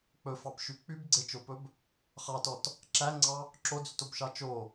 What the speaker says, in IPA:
k͡p ɵ f ɑ b ʃ y k͡p y b ɡ͡ǀ e t͡ʃ o p ɵ b | χ ɑ t ɔ t | ǁ æ ŋ͡ǀ ɑ | ǁ o d͡z y t o b ʃ ɑ t͡ʃ o

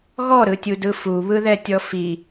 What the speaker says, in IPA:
ɣ ɔ ɾ ɯ tʲ u d ɯ f u β ɯ ð ɛ tʲ ɔ f i

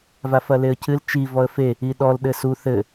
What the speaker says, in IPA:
v a f ɐ l e ə̯ cʰ ɨ l t͡ʃ i v ɔ ə̯ f e | i ɗ ɔ l ɗ ɘ s u θ ɘ

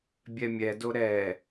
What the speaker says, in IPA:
bʲ ɛ mʲ ɛ d o ɾ ɛ

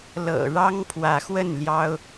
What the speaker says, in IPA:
l ɤ̰˨˩ ɻ ɑ˦ ŋ pʰ w ä˨˦ x w ə˥˨ n l j ɑ˦ ʊ̯

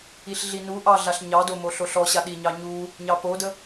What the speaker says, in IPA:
i ɬ ɮ i n u ʔ ɑ ɮ a ɬ ɲ ɑ d o m o ɬ o ɬ ɔ ɕ a ɗ i ɲ ɑ ɲ u | ɲ ɑ p o d ə

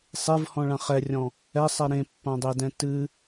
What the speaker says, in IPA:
sˤ e v h ɔ̃ ɭ ã χ ɛ rʲ ɔ̃ | ɛ sˤ ɛ ɾ ẽ pː ã dˤ e d ɛ̃ t ɨ

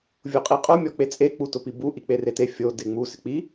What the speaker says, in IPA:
vʲ o qʼ i qʼ o mʲ ɔ k͡p e t͡sʼ e k͡p u t ʊ p i b u ʔ i k͡p e r e t e fʲ o d e ŋ͡m u s ɪ k͡p i

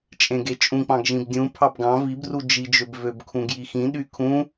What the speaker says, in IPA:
t͡ʃʼ ẽ ɡ e t͡ʃʼ ũ k͡p ɑ̃ ɡ ʒ ĩ b dʲ ũ pʰ ɑ b ɡ ɑ̃ v i b r u d͡ʒ i d͡ʒ ø b v ø b kʰ ũ ɡ j i x ĩ ɗ y kʰ ũ

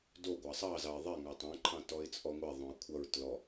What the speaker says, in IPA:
d o ɡʷ ɑ sˤ ɑ z ɑ ɪ̯ ðˤ e ŋ ɑ tˤ ẽ ǃʰ ɑ̃ t ɔ ɪ̯ t͡sʼ ɔ ŋʷ e ðˤ õ ə̯ kʷʰ ʌ ɹ t l ɔ

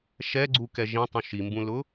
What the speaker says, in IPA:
ʃ ɛ ɡ͡ǀ u k ɛ ʒ ĩ tˤ ũ ʃ i m b ũ l ʊ

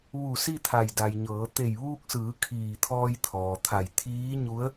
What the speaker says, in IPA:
ʋ u˧˩ s i˥˨ t̪ʰ a˧˩ j d a˩ j ɲ ɤː˩˧ t̪ e˧˩ j ʋ uː˧ k̚ s ɯː˩˧ kʰ iː˧˩ t̪ʰ ɔː˧ j t̪ʰ ɔː˩ t̪ʰ a˧˩ j t̪ʰ iː˧˥ ɲ u˧˥ ə̯

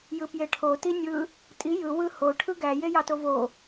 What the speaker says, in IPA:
j ɯ p j e ʈʰ o t i nʲ ɯ | tʼ i j ɯ w ɯ h o ʈʰ ɯ ɡ æ j e j ɑ t o v o

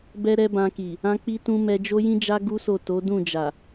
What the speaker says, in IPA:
b ɛ˦ ɾ ɛ˦ b ã˧ k i˨ | ã˦ k͡p i˦ t ũ˦ m ɛ˧ d͡ʒ o˦ j ĩ˦ d͡ʒ a˦ ɡ u˦ s o˦˨ t o˨˦ d ũ˦˨ d͡ʒ a˨

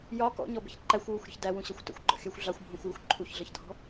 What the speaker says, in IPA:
j ɒ k ɔ̰ ɲ ɔ b ə̤ ç ǃ æ xʷ w u xʷ ɾʲ ə̤ ç d æ w ũ ɕ ʌ xʷ t ə̰ xʷ ɡ͡ǃ ɔ̰ xʲ ɜ xʷ ɮ ɑ xʷ bʱ ũ xʷ j ʊ xʷ ǃʰ u ç ɮ ʌ ç dʱ ɔ̤

